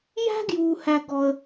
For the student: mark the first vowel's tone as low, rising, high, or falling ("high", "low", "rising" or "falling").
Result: high